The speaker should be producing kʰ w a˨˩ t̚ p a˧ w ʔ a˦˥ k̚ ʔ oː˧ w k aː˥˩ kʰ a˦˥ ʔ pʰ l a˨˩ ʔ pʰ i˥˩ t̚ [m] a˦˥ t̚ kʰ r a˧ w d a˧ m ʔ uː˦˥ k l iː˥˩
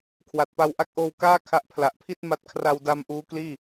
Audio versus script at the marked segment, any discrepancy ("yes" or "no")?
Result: no